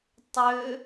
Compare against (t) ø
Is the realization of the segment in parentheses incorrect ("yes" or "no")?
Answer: yes